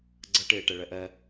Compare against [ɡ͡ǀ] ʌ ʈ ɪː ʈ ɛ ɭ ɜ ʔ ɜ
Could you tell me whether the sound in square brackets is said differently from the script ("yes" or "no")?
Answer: no